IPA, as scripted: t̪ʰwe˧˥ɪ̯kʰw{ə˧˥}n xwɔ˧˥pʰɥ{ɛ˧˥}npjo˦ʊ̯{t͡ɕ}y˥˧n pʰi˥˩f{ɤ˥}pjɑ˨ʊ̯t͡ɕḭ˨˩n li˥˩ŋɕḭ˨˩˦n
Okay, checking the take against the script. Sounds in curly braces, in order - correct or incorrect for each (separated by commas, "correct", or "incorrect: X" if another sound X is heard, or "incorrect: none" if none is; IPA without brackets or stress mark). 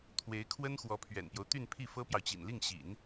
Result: incorrect: ə˥, incorrect: ɛ̰˨˩, incorrect: t̪, correct